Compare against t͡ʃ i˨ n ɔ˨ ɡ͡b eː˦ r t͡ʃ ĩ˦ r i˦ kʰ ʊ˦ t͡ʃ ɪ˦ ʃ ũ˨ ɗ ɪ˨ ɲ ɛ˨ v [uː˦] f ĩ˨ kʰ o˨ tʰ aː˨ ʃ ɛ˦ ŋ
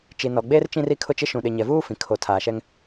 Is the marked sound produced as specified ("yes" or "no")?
yes